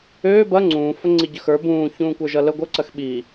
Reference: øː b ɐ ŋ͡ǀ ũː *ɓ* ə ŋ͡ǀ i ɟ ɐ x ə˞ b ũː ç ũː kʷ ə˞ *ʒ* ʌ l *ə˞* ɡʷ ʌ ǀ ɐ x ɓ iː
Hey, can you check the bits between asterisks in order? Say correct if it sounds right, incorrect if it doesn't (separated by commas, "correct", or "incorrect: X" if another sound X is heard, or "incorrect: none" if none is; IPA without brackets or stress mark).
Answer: incorrect: f, correct, incorrect: ə